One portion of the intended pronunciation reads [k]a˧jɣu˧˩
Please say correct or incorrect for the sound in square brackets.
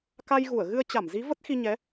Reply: correct